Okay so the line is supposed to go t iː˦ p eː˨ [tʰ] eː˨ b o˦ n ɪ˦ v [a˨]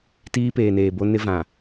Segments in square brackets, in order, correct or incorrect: incorrect, incorrect

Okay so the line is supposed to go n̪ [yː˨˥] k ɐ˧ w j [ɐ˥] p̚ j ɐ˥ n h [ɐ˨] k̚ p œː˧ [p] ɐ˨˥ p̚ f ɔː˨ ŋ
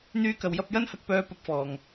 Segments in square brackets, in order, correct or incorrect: incorrect, correct, incorrect, correct

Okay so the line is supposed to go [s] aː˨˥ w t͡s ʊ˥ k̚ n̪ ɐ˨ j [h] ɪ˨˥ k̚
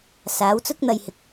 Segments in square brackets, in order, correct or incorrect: correct, correct

